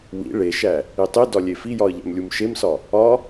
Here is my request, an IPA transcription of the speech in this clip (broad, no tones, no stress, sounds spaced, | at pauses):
w ḭ ɭ e ʃ æ | i tˤ i d ɒ lʲ e f i j ɒ ə̯ ʎ æ̰ m lʲ u m ʃ e m s ɒ | ɒ